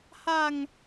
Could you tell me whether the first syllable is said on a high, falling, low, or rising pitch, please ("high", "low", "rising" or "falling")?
low